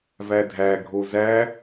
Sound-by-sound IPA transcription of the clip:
vædʱæɡʱo zæ

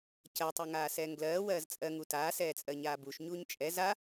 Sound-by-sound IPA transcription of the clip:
cɜtˤu ŋaːsɛːŋɡlɜː wɜːzt͡sʼɜ ŋutaːsɛːt͡sʼɜ ɲaːbuʃɲuːɲ t͡ʃʼɛ za

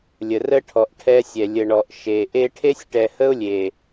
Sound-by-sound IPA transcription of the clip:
lʲə˨rə˦ʈʰɔ˨ʔ ʈʰɛ˦sʲɛ˨ lʲə˨ ɳɔ˨ʔ ʃe˨ ʔe˦ ʈʰe˦sʲʈɛ˨hə˦ʊ̯lʲe˨

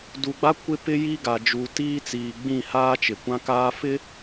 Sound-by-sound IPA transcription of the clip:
du˨ɡ͡ba˦ kʷɪ˦ pɪ˦ ji˦ɡa˨d͡ʒuː˨tiː˦ t͡siː˨ɡ͡bĩ˦˨haː˦ t͡ʃɪ˨kʷã˦ kaː˦fɪ˦

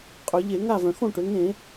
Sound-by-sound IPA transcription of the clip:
qʼø˩˧ʎe˧˩˧ŋa˥˨ vœ̃˩ xõ˥˨ʈø˩˧ ŋẽ˧˩˧

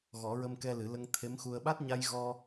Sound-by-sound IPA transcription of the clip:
ɣɔ˨˩˦ɹə˧mkɛ˧lɨ˨˩˦ lə˧ŋt̪ʰe˧˥mxu˧ə̯ ɓa˦˥t̚ɲa˧jɣɔ˧

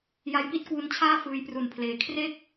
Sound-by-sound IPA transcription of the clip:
ja˦˥jpi˥˩t̚kwu˧nt͡ɕʰaː˥˩ fɯː˧jpru˨˩npʰleː˩˦ kʰre˥˩k̚

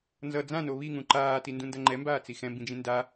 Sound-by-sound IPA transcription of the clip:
nzʌ d͡zãno βiŋũ ǃaːtindũndʌ ŋ͡ǃɛmbaːt͡si xɛ̃mbĩd͡ʒĩ nda

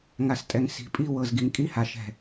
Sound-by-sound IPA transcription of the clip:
ŋa˨stʼɛ˨ŋ si̤˨ pʼi˦ wɤ˨zɡi˨ŋ kʼi˦ha˨ʃɛ̤˨

